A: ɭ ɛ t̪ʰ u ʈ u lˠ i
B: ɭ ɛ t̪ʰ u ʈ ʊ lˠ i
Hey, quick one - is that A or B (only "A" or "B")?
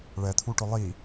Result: B